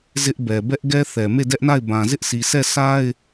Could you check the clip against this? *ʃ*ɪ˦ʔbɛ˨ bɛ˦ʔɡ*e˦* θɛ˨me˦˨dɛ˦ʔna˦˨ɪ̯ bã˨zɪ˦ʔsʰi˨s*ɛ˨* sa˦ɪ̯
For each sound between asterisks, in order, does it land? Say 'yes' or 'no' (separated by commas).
no, no, no